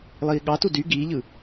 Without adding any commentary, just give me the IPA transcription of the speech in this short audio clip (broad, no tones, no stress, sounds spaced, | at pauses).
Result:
lˠ iː ɠ ɑ t u d y ɡ iː ʎ ɯ